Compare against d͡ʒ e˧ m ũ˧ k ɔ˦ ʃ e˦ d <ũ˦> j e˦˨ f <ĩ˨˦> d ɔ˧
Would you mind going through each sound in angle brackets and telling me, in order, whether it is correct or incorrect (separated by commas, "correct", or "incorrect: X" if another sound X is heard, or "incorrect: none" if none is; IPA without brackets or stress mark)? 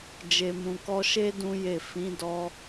correct, correct